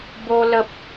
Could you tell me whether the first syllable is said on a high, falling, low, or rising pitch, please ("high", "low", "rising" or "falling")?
high